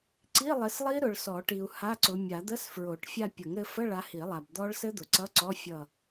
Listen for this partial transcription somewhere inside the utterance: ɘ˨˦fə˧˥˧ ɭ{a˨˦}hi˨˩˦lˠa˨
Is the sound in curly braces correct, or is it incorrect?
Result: correct